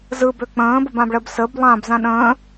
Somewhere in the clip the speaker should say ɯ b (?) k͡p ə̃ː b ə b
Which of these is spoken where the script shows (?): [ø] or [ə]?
ø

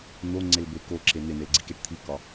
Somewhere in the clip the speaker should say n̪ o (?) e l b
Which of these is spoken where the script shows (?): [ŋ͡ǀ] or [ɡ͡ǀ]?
ŋ͡ǀ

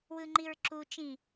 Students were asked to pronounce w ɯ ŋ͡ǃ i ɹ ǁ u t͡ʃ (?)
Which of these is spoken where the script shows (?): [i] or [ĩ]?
ĩ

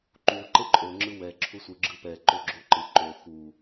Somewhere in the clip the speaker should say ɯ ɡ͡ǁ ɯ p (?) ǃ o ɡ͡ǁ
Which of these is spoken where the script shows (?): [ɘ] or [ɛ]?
ɛ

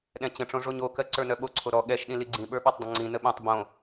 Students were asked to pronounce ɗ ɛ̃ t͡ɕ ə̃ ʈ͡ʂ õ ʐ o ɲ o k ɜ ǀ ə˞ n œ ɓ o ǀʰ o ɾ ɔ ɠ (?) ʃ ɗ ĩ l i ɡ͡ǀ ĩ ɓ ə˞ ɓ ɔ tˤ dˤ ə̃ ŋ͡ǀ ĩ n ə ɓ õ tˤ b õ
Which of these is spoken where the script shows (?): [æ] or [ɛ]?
ɛ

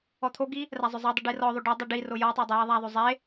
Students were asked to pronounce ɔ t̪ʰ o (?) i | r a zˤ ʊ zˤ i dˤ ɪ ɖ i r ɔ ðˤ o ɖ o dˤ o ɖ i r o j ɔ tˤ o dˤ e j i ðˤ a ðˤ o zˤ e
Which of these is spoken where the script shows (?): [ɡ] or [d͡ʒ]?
ɡ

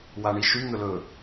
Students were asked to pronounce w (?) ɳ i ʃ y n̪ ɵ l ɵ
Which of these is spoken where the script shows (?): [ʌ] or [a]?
a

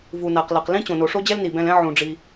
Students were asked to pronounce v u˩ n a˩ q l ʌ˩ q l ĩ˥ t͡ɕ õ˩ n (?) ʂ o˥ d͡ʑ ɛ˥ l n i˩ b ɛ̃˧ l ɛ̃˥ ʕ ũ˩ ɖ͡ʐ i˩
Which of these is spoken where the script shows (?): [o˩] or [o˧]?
o˩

